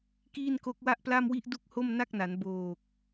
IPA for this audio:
k iː˥˩ n k o˦˥ k̚ w a˥˩ ʔ p l a˥˩ m w i˥˩ ʔ d u˥˩ k̚ h o˥˩ m n a˥˩ k̚ n a˩˦ n b oː˨˩ k̚

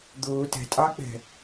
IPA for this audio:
d̪ ʊː t ɛ̤ tʼ ɑ k͡p ɛ̤

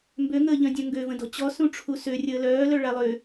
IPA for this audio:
m b ø ŋ əː ʎ œ̃ dʲ œ̃ ŋ ɡ ø v ə̃ d ɔ̤ t͡ɕ ɔ s ũ ʈ͡ʂʰ u s ø rʲ əː l œː l œ ɭ a lˠ ø

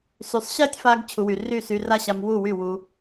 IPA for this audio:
s y˨ sˤ ɕ ɛ˦ tʲ f a˧ ɡ t͡ɕʰ u˨ w y˨ r y˦˨ s y˧ r a˦ ɕ a˧ m w u˦˨ w y˦˨ w u˧

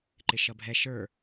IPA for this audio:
ǃ ɪ ʃ ʌ bʱ ɛ ʃ ə˞

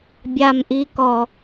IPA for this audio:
bʲ a m ʔ i k ɔ

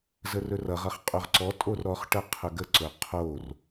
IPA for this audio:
z ə r ɵ r ʌ ʁ ʌ χ qʼ ɵ ʁ ǀ ɔ tʼ o r ɾ ɔ χ ʈ ə qʰ ɵ ɡ ə ǀ ɵ qʰ o r

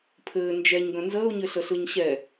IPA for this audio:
pʰ ɘː n d͡ʒ ɛ ɲ ɡ œ̃ n z əː ʊ̯ ɲ ɘ ɬ ə ɬ ɯ ɲ ɕ ɛ

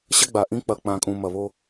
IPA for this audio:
ɕ ɐ˦ ɡ͡b a˨ ʔ ĩ˦ k͡p ɐ˨ k͡p ã˨ kʼ ũ˨ m ɐ˨ β o˦

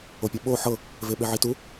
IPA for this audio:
o pʲ ɛ ɓ o ħ ɤ | v e ɓ e ʕ i t u

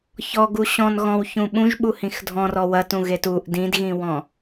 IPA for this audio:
ç ɔ ɡ u ɕ ɔ̃ n ɣ ɔ̃ w ç ũ ɓ ũ ʒ ɓ u h ĩ x dʱ ɔ̃ r ɔ w ɐ t ũ ɣ e t u ʔ d ĩ d ɣ ĩ w ɔ̃

